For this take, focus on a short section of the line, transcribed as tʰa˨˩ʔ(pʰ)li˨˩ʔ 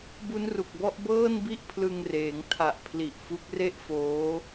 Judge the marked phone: correct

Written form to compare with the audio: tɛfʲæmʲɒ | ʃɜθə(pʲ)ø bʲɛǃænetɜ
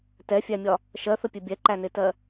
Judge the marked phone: correct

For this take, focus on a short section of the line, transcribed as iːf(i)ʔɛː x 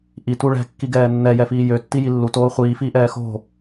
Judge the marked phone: incorrect: iː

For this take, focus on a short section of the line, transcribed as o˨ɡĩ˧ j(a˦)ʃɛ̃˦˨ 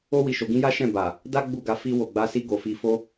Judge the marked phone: correct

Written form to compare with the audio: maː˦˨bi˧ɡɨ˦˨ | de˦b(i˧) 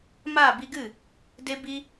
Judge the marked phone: incorrect: i˦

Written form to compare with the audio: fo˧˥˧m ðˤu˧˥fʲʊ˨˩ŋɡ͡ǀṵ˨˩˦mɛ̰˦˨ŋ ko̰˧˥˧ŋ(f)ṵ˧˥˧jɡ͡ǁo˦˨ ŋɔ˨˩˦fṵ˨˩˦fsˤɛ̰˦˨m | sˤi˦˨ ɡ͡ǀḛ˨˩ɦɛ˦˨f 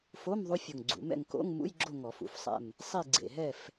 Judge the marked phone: incorrect: m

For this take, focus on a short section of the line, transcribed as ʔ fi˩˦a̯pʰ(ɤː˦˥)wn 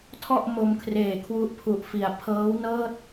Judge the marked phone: correct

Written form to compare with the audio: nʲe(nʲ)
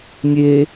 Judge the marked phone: incorrect: none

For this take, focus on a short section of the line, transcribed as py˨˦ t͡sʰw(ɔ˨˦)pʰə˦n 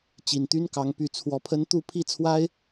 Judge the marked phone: correct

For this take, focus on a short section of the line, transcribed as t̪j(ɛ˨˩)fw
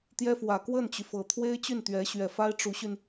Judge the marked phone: incorrect: ɛ˥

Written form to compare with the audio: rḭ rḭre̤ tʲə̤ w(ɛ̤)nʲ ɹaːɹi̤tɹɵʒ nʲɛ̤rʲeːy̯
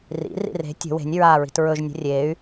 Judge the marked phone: incorrect: e̤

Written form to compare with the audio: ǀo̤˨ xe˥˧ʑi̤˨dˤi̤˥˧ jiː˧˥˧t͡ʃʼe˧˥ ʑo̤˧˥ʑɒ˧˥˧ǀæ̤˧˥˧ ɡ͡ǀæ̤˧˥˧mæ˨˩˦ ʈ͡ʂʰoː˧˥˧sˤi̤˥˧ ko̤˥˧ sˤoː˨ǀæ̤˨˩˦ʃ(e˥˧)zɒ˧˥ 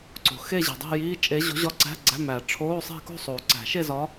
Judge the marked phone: correct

